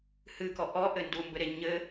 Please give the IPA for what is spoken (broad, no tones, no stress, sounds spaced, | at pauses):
h ɨ k ɔ ʔ ɔ ʔ ɘ n d u m b ɘ ɾ e ɲ ɘ